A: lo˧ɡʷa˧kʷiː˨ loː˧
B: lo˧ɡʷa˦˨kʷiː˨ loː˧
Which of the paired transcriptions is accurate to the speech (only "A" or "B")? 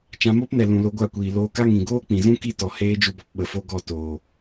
B